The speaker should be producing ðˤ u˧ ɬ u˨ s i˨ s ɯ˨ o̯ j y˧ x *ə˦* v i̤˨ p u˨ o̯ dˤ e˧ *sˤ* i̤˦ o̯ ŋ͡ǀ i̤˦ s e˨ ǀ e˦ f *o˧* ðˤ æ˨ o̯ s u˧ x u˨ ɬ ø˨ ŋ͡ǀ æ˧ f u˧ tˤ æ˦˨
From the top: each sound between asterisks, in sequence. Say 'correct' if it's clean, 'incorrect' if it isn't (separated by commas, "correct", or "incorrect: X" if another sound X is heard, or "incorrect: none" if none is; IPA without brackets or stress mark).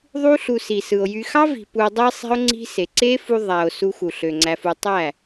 incorrect: ɑ˦, correct, incorrect: u˧